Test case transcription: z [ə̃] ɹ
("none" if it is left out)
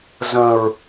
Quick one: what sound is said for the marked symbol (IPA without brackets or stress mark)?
ə̃